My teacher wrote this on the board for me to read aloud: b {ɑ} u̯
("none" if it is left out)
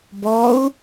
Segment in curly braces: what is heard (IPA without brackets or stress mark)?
ɔ